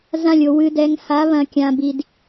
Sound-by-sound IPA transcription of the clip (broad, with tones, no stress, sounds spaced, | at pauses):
z ã˦˨ lʲ o˨ w ɨ˨ d ɛ˨ ŋ h a˨˦ β ɐ̃˨ kʲ ã˨ b i˨ d